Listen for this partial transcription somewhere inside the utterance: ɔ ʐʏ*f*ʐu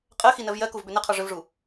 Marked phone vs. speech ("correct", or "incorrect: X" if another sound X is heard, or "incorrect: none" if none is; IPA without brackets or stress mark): incorrect: v